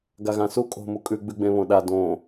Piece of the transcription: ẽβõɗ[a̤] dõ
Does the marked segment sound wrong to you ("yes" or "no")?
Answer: yes